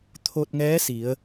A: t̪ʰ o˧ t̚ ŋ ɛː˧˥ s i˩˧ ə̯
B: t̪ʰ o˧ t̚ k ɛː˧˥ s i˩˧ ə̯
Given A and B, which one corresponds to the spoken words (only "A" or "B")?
A